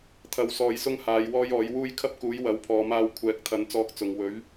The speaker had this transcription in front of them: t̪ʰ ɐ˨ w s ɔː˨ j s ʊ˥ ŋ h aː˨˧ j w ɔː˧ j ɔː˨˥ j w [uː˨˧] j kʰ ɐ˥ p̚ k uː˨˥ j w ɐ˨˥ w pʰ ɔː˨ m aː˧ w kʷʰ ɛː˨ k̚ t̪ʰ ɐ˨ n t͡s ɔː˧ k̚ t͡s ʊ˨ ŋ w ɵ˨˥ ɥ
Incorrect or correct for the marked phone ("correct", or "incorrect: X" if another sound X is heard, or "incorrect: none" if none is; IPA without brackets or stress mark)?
incorrect: uː˥